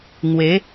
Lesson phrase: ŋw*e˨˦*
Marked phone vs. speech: correct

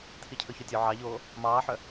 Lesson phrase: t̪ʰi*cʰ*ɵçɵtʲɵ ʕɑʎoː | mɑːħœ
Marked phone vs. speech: correct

